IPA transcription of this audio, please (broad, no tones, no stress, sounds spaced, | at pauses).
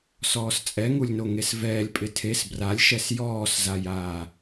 s ɔː s t͡sʼ ɛ ŋ u lʲ n o ŋ e s v ɛː lʲ pʼ ɪ tʰ e s b r a lʲ ʃ ɛ s j ɔː s z a j aː